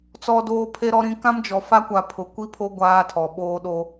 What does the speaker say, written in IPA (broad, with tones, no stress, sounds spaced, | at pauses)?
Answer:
t͡s ɔ˦ d oː˦ pʰ e˦ ɾ ɔ˦ ɾ ĩ˦ k ã˦ m d͡ʒ ɔ˨ f a˦ kʷ a˨ pʰ ʊ˨ kʷ i˦ pʰ o˦ ɡʷ aː˦ tʰ ɔ˨ ɓ oː˦ ɗ o˦